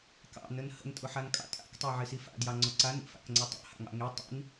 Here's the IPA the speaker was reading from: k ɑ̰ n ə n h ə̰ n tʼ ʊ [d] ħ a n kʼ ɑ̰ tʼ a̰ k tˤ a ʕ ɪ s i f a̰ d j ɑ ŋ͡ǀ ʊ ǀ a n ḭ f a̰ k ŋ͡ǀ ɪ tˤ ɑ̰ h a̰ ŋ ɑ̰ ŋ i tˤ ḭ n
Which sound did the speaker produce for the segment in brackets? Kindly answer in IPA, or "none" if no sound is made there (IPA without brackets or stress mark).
none